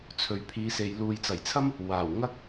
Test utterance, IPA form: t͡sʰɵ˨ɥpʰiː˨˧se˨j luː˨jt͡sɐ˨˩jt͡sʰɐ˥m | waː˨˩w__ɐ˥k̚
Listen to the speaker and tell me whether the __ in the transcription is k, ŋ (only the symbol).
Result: ŋ